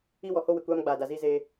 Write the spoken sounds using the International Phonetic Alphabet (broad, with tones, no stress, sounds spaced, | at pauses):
i˦ w ɔ˨ h o˦ w ɪ˨ kʷ aː˦ m ɡ͡b aː˨ d a˨ z iː˦ z eː˦